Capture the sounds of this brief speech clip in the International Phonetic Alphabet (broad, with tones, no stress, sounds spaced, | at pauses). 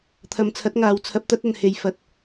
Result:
t̪ʰ ɐ˨˧ m t͡sʰ ɐ˨˥ t̚ ŋ aː˨˧ w t͡sʰ ɐ˨˥ p̚ t̪ ɐ˨˥ t̚ ɐ˨ n h e˨ j f ɐ˨ t̚